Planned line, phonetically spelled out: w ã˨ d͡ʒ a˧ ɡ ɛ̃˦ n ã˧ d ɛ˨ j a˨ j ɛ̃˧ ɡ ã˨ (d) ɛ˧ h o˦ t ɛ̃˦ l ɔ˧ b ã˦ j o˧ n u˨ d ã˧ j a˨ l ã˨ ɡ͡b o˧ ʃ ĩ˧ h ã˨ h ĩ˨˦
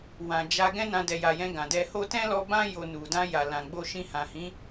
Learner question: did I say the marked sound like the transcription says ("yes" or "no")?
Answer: yes